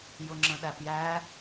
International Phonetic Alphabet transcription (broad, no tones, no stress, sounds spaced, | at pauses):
j ʊ ŋ͡ǁ ə̃ ɗ æ p j æ